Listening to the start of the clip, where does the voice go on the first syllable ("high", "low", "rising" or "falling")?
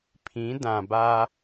rising